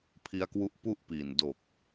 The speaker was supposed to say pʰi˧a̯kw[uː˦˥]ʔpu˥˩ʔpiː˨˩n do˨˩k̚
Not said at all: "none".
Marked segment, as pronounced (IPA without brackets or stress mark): u˦˥